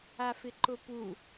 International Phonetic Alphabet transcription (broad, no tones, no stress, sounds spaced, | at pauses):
a f ɪ ǃ ʊ p u